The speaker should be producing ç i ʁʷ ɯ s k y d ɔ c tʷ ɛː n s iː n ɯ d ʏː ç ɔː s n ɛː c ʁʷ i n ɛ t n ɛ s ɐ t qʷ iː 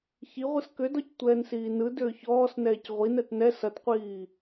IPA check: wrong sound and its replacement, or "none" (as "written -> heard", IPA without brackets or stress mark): y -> ʏ